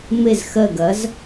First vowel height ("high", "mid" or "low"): mid